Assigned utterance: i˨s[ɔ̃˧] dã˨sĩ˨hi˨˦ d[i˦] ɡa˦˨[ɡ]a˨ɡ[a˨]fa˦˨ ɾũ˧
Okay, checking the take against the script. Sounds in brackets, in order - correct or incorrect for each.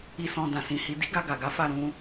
incorrect, correct, correct, incorrect

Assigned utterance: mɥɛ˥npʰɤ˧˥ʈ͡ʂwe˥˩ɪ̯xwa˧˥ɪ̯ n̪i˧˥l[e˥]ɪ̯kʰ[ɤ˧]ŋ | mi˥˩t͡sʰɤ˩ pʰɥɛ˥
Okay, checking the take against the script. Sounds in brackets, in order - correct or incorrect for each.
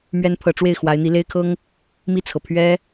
correct, incorrect

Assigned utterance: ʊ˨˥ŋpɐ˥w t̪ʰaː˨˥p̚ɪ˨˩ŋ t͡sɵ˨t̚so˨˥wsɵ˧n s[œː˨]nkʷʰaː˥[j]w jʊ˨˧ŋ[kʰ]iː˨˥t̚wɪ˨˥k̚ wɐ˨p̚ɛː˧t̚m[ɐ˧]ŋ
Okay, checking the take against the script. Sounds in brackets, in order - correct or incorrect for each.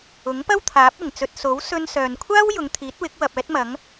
correct, incorrect, incorrect, incorrect

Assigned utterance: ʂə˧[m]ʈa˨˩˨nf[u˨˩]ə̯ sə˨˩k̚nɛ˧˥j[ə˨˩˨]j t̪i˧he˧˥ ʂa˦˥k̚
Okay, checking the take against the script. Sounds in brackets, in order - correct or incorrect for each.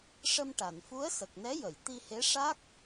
correct, incorrect, correct

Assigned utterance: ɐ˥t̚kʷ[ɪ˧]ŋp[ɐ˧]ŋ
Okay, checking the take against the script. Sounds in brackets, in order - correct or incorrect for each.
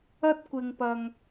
correct, correct

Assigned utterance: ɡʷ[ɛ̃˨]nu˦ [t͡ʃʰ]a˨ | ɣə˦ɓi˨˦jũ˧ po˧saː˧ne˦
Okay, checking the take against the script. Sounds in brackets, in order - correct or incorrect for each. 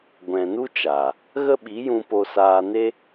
correct, incorrect

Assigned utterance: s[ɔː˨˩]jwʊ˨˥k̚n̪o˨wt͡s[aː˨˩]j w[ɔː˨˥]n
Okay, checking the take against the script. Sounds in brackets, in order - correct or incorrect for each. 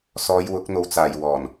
incorrect, correct, incorrect

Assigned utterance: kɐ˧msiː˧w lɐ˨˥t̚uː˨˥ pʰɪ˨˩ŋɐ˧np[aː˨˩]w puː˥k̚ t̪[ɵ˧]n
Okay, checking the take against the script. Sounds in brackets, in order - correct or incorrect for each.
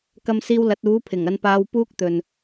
incorrect, incorrect

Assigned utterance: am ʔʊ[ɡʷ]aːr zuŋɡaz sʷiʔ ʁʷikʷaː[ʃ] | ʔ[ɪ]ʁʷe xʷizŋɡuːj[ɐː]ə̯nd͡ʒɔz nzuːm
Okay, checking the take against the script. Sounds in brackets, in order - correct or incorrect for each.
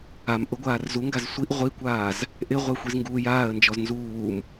correct, incorrect, correct, incorrect

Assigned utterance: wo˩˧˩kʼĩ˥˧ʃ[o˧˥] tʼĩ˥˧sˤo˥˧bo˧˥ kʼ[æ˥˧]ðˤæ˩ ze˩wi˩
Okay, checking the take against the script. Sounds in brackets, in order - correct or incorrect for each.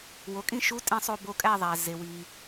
incorrect, correct

